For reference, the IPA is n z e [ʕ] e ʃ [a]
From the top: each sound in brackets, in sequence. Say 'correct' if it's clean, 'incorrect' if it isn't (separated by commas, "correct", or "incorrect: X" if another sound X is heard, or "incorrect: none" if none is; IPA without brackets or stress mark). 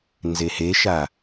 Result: incorrect: h, correct